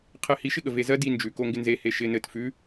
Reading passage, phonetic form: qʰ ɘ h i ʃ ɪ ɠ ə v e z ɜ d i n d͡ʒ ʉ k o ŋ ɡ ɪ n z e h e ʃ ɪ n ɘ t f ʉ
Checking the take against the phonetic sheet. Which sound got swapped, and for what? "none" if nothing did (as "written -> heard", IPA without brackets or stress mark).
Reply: none